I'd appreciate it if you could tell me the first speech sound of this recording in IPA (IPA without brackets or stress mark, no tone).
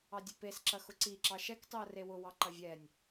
ɑ